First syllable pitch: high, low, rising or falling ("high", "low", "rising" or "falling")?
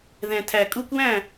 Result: low